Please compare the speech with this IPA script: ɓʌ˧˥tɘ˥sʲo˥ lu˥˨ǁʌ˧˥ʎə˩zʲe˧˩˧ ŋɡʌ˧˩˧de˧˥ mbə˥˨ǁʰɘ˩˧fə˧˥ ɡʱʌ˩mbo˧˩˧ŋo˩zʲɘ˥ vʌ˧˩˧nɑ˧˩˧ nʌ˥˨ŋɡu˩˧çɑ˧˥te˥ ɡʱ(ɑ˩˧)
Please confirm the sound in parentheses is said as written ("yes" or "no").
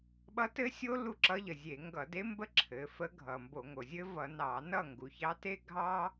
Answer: no